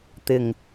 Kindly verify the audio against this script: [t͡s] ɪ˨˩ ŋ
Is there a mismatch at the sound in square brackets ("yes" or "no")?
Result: yes